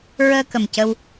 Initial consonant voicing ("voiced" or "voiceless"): voiced